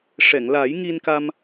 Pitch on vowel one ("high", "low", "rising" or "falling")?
low